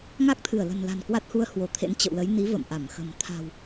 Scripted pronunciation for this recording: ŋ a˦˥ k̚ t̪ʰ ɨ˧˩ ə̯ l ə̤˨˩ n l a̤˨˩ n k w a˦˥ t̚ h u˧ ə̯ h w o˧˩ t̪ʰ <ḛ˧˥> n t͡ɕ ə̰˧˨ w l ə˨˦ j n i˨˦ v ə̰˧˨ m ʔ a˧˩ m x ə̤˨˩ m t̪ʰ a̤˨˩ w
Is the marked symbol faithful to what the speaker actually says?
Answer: yes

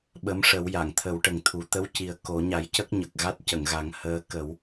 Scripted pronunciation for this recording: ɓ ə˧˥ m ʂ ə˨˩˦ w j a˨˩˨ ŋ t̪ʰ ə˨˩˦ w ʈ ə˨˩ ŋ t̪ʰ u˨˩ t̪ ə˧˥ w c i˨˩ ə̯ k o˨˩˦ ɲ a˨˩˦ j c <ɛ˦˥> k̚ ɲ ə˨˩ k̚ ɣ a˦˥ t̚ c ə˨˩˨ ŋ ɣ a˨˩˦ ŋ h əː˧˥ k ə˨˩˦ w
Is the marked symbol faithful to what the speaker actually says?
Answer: no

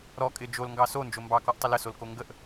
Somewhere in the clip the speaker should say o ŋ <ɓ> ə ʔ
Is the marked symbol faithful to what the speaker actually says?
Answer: no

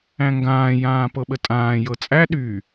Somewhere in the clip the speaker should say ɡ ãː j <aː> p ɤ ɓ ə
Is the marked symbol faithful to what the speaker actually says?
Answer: no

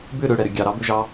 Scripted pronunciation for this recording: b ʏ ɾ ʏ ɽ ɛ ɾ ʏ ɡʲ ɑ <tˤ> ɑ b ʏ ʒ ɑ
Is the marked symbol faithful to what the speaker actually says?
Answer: no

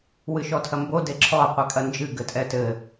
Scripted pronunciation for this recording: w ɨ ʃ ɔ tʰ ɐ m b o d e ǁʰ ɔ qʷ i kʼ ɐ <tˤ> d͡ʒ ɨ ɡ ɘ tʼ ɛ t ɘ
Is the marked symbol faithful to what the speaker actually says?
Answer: no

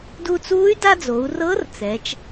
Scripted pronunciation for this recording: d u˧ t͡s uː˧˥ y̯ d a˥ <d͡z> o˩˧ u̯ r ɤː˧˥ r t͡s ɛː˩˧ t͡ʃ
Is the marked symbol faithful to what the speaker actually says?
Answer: yes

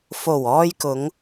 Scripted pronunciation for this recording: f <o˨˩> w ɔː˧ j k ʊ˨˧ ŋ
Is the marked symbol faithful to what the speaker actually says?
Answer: yes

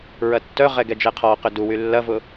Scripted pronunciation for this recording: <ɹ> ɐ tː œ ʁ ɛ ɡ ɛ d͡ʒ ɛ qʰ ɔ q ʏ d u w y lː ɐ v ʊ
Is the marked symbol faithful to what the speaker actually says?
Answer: yes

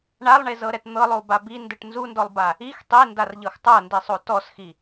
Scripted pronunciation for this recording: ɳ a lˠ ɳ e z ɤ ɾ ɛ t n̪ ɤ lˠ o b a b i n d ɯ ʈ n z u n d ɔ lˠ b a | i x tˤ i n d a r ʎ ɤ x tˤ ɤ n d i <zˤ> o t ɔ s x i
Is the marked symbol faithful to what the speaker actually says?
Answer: no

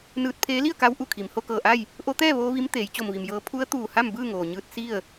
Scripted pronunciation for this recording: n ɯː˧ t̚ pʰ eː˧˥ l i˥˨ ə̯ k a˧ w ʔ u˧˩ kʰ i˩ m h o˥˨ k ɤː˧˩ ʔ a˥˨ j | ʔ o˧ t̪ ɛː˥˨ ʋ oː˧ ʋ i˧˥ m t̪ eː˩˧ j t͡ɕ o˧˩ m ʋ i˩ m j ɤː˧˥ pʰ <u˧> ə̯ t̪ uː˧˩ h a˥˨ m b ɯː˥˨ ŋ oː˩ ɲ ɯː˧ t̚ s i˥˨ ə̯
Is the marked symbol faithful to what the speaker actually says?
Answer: no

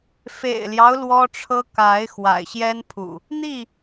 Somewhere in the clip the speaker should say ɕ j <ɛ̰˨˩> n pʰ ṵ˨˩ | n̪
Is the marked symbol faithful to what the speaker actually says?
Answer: no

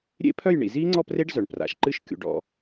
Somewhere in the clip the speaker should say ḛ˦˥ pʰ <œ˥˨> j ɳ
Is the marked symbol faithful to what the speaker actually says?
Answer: yes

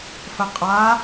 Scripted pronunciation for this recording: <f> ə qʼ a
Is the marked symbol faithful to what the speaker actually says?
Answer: yes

